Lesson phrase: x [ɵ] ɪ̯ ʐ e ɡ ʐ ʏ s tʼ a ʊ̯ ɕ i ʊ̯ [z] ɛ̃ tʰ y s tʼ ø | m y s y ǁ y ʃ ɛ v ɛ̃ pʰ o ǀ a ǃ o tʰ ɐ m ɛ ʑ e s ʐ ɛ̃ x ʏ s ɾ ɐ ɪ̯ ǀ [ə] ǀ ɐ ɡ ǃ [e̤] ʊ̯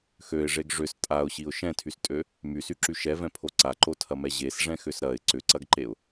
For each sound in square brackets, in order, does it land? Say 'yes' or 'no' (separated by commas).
no, no, no, no